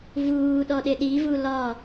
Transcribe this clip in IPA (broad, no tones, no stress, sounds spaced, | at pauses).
v uː ɗ ɔ ɗ ɪ ɗ i v u l ɒ